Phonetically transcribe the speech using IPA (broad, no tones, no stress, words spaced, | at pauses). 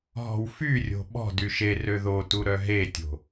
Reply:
ɦɔ̤wfyrʲo̤ ɓɔ̤ dyʃerø ðotu ɾœɦetʲo̤